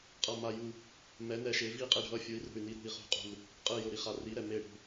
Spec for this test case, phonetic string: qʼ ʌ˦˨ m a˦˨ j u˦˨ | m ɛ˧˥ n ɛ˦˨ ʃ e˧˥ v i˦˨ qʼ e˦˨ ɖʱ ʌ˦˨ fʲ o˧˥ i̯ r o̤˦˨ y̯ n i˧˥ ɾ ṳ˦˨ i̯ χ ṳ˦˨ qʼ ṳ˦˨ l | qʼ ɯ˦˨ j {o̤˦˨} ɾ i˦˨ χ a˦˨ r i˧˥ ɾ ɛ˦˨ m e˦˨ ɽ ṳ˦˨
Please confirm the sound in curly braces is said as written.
no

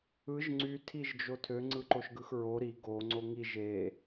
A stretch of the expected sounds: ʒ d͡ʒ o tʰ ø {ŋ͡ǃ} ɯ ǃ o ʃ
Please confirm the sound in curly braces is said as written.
no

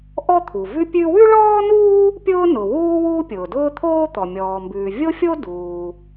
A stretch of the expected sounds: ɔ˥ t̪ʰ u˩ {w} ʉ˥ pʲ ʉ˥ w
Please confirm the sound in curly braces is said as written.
no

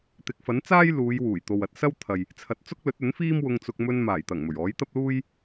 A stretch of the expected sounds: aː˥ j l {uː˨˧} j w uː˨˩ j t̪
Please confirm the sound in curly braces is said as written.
yes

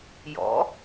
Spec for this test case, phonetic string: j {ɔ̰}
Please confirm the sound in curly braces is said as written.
yes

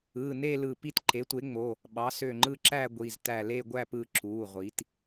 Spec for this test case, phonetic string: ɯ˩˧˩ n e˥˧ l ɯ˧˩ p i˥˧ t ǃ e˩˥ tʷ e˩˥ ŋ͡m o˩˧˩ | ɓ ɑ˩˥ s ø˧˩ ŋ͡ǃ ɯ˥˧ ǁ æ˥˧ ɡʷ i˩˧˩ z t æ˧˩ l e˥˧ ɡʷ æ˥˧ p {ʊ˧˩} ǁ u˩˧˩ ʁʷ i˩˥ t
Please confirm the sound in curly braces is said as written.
no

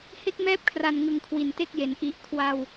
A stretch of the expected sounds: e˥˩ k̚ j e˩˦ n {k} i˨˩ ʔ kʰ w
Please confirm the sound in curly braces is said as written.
no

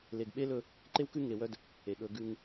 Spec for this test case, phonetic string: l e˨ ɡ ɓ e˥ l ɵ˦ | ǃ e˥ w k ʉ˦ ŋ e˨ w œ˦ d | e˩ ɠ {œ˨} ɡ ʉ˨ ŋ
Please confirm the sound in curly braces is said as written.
no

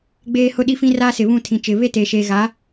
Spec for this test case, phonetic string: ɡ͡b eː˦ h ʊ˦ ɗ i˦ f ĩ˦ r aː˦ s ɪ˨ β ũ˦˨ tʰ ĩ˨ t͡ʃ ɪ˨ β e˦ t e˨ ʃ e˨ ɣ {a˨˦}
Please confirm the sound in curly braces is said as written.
yes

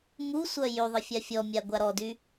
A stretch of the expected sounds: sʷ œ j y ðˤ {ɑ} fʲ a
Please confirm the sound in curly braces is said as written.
no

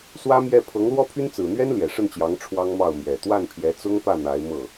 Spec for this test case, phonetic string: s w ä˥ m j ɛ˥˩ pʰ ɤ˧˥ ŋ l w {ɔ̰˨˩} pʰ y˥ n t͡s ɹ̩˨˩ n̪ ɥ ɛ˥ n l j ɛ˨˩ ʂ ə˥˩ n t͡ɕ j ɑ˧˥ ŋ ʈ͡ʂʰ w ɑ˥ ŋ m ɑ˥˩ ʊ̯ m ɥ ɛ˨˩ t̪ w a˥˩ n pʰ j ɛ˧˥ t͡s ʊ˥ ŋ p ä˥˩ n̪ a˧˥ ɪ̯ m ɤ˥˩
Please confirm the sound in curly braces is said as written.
no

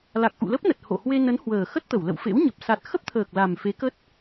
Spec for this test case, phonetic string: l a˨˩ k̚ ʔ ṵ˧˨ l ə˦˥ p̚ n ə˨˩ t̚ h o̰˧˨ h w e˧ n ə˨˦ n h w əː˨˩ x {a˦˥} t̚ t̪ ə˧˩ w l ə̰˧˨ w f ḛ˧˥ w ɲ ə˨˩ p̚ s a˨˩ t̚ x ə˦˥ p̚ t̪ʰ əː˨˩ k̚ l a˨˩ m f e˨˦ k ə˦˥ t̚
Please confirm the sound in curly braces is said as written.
no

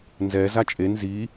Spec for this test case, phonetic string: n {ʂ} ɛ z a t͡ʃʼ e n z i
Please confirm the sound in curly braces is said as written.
no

